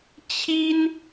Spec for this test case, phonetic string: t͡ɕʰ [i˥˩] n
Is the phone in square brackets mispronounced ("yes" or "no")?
yes